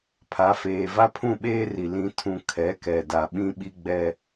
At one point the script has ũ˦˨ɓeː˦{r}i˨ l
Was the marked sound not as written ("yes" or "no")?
no